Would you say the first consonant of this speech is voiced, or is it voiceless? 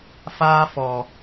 voiceless